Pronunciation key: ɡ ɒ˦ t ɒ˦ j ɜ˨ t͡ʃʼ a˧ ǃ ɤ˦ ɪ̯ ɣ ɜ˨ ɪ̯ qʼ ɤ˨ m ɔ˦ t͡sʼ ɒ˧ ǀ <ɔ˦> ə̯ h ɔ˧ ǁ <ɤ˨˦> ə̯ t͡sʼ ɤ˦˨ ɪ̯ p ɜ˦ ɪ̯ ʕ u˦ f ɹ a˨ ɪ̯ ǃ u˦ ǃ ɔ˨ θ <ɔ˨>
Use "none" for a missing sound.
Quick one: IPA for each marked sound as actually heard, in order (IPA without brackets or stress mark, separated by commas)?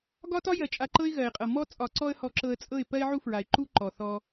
ɔ˦, ɤ˧, ɔ˧